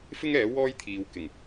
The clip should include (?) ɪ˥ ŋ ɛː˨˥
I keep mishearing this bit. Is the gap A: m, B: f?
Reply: B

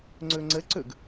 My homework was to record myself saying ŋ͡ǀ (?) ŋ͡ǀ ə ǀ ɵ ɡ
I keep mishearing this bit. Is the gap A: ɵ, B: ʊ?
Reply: A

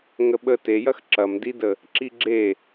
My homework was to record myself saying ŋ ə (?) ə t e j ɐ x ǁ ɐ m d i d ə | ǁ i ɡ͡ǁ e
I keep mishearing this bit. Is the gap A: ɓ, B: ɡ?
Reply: A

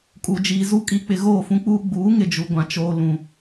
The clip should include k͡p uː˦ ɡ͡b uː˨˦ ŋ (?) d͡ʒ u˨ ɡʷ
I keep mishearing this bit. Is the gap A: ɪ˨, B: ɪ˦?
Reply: A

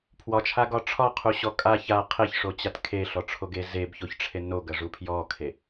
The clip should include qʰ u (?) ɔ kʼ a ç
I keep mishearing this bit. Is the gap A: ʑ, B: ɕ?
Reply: B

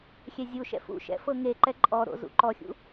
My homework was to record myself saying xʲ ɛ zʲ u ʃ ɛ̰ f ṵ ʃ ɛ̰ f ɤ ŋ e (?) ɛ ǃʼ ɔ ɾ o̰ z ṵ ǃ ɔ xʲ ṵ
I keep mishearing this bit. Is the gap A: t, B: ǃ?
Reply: B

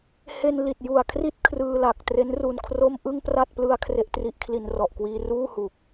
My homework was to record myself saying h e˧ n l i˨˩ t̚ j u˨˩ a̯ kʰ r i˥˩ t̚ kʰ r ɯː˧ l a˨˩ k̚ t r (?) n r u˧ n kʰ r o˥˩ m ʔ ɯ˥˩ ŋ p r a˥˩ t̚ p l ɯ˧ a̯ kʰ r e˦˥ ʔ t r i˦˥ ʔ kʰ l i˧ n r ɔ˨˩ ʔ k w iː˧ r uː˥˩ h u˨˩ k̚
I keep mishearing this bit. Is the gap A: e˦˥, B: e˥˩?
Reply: A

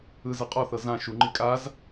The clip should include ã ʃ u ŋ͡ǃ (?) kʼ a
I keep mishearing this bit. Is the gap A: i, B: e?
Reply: A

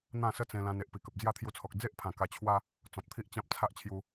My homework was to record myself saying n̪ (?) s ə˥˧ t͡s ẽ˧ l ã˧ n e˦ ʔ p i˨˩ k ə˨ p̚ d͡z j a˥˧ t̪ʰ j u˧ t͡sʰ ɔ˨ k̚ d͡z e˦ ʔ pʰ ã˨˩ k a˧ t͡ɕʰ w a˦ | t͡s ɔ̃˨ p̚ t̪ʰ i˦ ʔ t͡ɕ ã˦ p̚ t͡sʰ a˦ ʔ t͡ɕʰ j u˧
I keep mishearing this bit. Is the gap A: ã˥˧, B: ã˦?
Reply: A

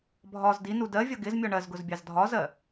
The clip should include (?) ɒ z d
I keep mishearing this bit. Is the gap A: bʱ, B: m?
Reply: A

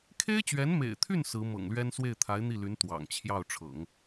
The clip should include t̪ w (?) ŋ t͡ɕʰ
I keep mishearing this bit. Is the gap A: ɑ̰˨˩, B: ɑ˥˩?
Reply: A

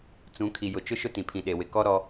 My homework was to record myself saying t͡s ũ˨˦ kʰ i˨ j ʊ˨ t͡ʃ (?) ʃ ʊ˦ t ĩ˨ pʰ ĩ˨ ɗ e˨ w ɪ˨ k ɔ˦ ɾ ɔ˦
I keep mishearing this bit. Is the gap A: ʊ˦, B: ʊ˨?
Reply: A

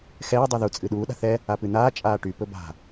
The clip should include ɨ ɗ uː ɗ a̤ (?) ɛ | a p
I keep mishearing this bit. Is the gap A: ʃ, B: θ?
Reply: B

